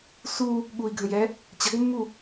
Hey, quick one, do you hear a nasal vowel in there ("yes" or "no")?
yes